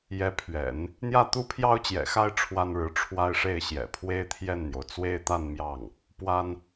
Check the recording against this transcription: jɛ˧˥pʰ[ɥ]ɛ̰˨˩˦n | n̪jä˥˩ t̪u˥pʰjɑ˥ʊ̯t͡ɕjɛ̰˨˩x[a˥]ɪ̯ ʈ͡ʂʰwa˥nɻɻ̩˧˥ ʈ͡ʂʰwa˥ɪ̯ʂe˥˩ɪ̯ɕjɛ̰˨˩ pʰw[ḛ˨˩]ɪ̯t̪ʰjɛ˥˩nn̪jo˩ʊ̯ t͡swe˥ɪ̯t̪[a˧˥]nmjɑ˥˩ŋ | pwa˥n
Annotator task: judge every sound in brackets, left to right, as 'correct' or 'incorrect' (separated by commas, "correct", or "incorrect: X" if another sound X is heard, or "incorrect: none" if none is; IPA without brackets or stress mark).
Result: correct, correct, incorrect: e˥, incorrect: a˥˧